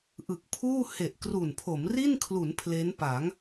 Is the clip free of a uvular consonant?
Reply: yes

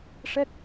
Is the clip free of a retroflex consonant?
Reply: no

